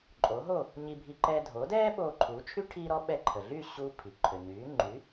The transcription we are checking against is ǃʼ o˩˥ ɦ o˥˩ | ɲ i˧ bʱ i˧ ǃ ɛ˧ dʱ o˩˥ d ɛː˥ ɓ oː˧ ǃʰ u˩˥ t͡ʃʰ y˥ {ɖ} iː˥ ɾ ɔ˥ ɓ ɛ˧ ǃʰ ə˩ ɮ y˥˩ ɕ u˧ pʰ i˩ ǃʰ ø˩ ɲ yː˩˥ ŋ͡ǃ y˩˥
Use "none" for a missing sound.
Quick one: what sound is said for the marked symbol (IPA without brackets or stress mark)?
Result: ʈʰ